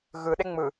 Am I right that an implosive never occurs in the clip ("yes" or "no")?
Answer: no